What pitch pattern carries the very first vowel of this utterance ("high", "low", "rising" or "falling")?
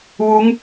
rising